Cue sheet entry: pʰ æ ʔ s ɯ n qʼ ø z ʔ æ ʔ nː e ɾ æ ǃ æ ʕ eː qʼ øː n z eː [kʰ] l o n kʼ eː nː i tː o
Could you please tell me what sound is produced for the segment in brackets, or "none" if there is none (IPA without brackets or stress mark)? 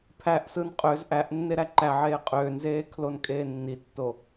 kʰ